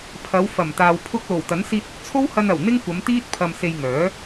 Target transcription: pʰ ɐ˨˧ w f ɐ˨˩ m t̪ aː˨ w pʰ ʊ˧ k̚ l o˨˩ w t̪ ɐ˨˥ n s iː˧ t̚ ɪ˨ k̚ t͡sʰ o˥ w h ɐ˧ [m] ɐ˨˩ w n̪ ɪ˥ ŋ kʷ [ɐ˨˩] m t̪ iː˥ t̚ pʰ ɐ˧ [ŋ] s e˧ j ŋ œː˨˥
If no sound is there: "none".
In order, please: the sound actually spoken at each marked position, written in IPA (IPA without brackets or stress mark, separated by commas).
n, ɐ˨˧, m